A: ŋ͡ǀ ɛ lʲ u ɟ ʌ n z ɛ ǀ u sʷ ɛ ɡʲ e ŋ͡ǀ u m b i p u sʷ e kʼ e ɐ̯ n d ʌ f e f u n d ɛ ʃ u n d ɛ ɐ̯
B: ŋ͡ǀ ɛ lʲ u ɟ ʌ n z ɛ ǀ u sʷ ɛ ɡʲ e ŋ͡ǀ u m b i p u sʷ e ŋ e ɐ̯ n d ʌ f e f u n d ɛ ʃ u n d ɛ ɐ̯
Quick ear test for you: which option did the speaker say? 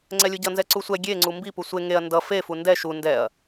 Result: B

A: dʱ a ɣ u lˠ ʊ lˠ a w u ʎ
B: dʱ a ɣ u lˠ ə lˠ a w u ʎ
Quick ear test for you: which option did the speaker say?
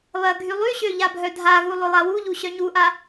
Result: A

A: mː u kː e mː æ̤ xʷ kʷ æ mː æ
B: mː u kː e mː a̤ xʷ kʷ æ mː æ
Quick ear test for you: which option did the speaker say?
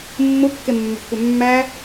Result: A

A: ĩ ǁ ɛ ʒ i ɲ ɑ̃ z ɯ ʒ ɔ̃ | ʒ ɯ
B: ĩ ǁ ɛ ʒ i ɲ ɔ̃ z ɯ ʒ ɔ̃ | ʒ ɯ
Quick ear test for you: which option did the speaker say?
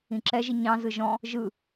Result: A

